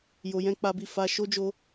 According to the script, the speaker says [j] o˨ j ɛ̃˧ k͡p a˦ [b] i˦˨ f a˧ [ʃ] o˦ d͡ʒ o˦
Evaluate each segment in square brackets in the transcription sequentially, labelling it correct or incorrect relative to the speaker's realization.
correct, correct, correct

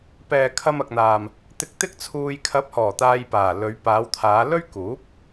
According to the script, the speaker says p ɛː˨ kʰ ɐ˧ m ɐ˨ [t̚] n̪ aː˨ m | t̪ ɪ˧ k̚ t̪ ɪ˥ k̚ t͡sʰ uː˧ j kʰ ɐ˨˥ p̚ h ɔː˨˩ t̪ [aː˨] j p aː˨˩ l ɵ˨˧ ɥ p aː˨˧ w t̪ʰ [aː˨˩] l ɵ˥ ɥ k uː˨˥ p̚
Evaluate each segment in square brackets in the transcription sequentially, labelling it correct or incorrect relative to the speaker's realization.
incorrect: k̚, incorrect: aː˧, incorrect: aː˨˧

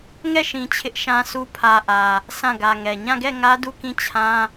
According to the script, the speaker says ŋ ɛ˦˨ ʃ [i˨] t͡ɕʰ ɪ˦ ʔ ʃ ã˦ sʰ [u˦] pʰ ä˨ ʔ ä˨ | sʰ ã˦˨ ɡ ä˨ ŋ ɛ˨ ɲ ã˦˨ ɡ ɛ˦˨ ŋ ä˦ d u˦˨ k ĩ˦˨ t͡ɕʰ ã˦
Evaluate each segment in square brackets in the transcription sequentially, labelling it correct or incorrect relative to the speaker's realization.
incorrect: ĩ˨, correct

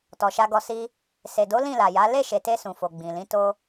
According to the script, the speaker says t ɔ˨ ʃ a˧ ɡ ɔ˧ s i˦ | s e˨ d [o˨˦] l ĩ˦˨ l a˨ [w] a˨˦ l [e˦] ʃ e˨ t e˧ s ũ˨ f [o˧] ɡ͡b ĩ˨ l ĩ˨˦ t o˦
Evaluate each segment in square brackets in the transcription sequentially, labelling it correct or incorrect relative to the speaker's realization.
correct, incorrect: j, incorrect: e˦˨, incorrect: o˨

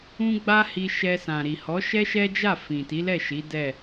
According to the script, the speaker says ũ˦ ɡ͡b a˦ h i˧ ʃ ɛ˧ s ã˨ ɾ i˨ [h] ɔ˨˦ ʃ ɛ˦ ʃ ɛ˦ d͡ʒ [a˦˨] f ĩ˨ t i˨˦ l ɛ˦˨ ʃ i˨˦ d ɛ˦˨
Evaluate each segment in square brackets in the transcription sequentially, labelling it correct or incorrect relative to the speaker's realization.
correct, correct

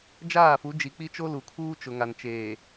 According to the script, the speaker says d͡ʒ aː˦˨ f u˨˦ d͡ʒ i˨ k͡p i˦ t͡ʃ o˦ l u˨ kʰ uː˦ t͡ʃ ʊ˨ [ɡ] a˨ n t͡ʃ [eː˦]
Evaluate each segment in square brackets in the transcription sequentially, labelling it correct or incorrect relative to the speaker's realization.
incorrect: ŋ, incorrect: eː˨

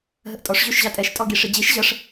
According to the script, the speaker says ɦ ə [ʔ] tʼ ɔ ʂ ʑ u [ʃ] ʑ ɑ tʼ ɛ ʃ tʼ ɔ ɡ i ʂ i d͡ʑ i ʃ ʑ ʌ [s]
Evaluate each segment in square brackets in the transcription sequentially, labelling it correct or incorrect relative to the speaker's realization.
correct, correct, incorrect: ʂ

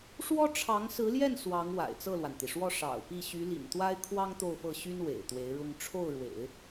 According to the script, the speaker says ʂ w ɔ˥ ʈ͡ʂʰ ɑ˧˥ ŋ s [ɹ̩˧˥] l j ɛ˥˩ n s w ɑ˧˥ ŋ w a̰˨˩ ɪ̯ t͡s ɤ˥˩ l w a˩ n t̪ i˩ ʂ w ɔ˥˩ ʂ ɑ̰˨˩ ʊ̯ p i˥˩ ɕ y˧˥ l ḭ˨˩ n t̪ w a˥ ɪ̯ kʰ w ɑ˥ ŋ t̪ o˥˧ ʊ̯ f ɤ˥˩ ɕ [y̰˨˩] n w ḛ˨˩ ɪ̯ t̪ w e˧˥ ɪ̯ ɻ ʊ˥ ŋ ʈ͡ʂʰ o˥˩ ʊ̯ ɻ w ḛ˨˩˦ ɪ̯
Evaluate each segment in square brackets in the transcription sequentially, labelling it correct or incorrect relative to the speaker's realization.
correct, incorrect: y˥

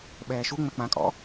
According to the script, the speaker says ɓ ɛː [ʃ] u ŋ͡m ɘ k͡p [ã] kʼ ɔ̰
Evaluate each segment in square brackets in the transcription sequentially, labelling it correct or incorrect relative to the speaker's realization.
correct, correct

